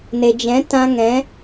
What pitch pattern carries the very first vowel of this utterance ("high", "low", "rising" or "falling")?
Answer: low